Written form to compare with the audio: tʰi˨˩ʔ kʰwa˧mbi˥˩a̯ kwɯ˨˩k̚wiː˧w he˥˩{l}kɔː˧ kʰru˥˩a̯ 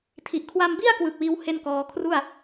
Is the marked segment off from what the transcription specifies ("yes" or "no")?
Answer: yes